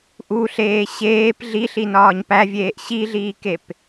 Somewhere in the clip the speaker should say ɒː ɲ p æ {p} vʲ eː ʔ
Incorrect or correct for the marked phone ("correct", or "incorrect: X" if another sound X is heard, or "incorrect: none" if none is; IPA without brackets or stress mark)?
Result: incorrect: none